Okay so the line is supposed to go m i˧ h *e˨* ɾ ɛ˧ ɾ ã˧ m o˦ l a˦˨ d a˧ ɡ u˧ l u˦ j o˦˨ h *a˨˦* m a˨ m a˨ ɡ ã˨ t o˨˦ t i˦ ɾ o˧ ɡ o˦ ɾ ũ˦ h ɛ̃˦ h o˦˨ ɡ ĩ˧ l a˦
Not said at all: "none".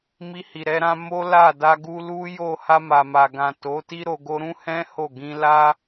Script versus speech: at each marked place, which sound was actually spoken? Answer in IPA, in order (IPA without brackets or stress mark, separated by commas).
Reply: i˨, a˧